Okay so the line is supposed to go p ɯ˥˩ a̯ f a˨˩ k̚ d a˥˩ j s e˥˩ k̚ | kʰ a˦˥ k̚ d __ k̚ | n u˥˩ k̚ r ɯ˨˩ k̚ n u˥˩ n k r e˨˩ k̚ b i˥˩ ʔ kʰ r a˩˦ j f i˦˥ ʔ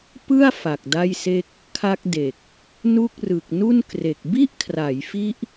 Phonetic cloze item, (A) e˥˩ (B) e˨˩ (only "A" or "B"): B